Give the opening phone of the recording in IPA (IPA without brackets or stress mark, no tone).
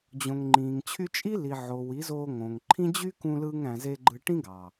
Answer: d͡ʑ